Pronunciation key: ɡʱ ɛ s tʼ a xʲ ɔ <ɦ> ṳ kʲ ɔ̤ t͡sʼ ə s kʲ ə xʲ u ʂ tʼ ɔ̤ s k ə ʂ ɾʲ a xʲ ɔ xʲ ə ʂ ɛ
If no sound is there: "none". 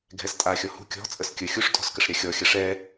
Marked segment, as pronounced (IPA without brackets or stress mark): h